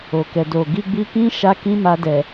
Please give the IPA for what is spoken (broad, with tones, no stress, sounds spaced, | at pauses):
o˨ k ɛ˨ d o˨ ɡ i˧ ɡ͡b i˧ k ĩ˦ ʃ a˧ k ĩ˦ m a˧ d ɛ˨